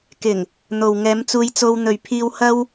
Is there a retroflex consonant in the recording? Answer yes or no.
no